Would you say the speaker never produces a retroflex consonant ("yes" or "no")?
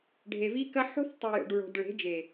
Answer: no